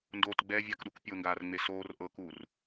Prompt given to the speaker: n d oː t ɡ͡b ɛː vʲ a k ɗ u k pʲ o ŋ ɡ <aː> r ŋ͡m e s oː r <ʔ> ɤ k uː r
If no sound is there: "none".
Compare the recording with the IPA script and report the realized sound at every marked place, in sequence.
aː, ʔ

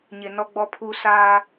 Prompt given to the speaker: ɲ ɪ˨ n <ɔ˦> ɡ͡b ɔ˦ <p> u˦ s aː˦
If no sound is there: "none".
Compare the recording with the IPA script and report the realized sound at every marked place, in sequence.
ɔ˦, pʰ

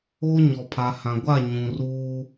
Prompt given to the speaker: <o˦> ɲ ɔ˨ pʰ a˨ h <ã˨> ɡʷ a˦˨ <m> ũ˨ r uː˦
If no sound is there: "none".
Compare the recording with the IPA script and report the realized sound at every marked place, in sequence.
o˦, ã˨, ɲ

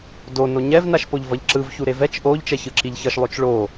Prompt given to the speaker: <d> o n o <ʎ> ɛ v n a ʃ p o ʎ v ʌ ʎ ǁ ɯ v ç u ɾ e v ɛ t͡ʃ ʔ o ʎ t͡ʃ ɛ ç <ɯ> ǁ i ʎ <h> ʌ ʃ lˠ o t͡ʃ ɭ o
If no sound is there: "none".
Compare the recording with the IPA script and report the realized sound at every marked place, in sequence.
d, ɲ, ɯ, ç

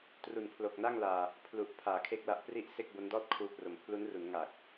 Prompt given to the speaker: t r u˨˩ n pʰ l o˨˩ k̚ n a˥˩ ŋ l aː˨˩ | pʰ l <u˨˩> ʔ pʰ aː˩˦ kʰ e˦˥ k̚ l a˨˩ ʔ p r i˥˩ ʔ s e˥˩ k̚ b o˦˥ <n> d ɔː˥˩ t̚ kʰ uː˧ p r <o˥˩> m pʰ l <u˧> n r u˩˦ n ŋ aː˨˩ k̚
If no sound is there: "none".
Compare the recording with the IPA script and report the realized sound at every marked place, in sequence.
u˨˩, n, o˩˦, u˦˥

